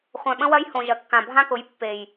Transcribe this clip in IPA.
χʷœ̃˨ɓə̃˦wɐ˦jhõ˨ ʒɐ˨kːã˨bʱã˦kʊ˨˦j pːe˨j

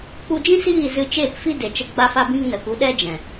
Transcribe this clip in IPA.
k͡pu˧d͡ʒĩ˦siː˦˨ zɨ˧t͡ʃeː˦˨p fi˦de˨t͡ʃə˧ ɡ͡ba˧fa˧ bĩ˦ŋnə˨ ku˨˦ɗɛ˦ d͡ʒɛ̃˨

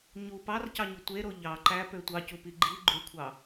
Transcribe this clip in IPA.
ɲu pɑrcɑɲu tʷeɾo ʎɑ ǃæpø tʷɑcupi ɡ͡ǃi ɡ͡ǃykʷʰɑ

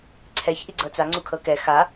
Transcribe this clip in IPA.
ǀʰɛç ʔiɡ͡ǀɤt͡sa ŋ͡ǀukʰɤkɛ xa

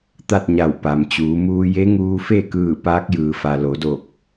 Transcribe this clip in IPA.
t̪a˥˨t̚ɲa˧˩wpa˩mt͡ɕuː˩˧ muː˧je˧˥ŋuː˧ fe˥˨kɯː˧˩ paː˧˥k̚jɯː˩fa˩ lo˩˧do˧˩k̚

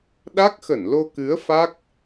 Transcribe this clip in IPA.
ɗa˦˥k̚xə˧˩nlo˧kɨ˨˦ə̯ fa˦˥k̚

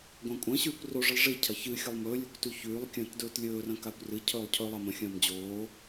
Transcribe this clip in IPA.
ɡʷɐ̃ːkʷʼɐ̃ɕʉːkʷ roʐɨlˠ ʐi cʰɐçɨxʲɐlˠ mɵːlʲɵkʷ tʉçʉːlˠkʲɐ̃ːt dɵːtlʲɵːrɐ̃ kakʷrɨcʰɵːlˠ cʰɵ lˠamɐ̃xʲɐ̃ːm d͡ʑoː

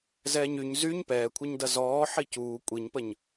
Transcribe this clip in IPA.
zɛːɲyɲ zyɲ pɛːkʷʰɛɲdɐ zɔː ħicuː kʷʼiɲpəɲ

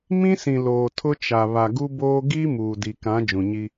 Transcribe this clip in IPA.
mĩ˦sĩ˨ loː˨tʰʊ˦t͡ʃa˨ βa˨ɡu˦boː˦ ɡiː˦ muː˨di˨kã˨˦ d͡ʒũ˨ɲi˦

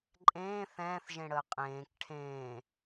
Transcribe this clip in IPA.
ǃʼẽː θɛ̃ːθʒẽɽəː qʼẽːk ʈʰẽː

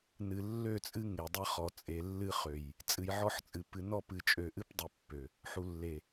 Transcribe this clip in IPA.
nɨ˨lːø˦˨t͡sʼɨ˦ ŋe˨dˤɨ˦χɔ˨ t͡sʼe˨lːɨ˦χø˨j | t͡sʼɨ˨jʕɔ˦ħt͡sʼɨ˨ pɨ˨nɔ˦˨pɨ˨ t͡ʃʼø˨ʔɨ˦pdˤɨ˨ pːø˨ | ħu˨lːe˨

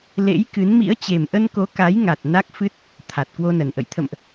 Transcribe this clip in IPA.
lḛ˧˥j kɨ˨˦nmḭ˧˥ə̯ t͡ɕe˨˩mʔə˧nko˨˦ ka˨˦jŋa˨˩t̚ na˦˥k̚fɨ˦˥t̚ | t̪ʰa˨˩t̚ kwo˧nə˨˩nʔə̰˧˨j t̪ʰə̰˧˨mʔ

